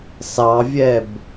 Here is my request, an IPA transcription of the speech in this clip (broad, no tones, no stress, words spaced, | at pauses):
sɑvʲɛb